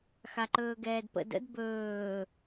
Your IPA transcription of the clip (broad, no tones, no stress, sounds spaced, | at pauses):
x a ǃ ɵː ɡ ɛː d p ə̰ d ə̰ d b ɵː